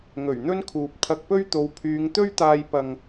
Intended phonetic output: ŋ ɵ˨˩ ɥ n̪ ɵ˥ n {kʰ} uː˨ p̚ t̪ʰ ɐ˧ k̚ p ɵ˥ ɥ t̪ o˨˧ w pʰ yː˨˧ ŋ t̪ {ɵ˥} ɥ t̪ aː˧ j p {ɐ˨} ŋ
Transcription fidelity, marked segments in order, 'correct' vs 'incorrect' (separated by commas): correct, correct, correct